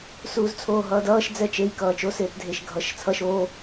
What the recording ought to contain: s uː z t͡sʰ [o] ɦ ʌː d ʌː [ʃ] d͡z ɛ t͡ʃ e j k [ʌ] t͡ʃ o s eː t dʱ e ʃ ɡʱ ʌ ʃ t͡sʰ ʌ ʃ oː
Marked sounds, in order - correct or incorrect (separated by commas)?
incorrect, correct, incorrect